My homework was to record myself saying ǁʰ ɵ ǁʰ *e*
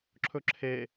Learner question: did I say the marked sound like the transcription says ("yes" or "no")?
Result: yes